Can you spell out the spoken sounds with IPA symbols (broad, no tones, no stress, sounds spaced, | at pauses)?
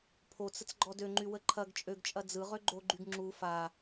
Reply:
pʰ o t͡s ə t͡s ɡ͡ǃ ɔ d ø ŋ͡ǃ y w ə ǃʰ ɐ ɡ t͡ʃʼ ø ɡ t͡ʃʼ ɐ d͡z ɯ ʁ ø ɡ͡ǃ o ɡ͡ǃ y ɡ ŋ͡ǁ u f a